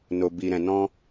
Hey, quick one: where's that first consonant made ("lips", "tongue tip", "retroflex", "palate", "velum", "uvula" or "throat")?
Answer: tongue tip